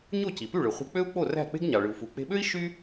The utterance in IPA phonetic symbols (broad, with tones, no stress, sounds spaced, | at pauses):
ɲ o˥˩ c i˩ p y˥˩ ɭ ɯ˩ χʷ e̤˧ k͡p ø˥ u̯ k͡p o˥˩ r æ̤˥˩ k͡p e̤˥ ɡ ɲ ɑ˩ ɭ ɯ˩ u̯ f u˩ k͡p e̤˧ ɓ ø˥ i̯ ʃ y˥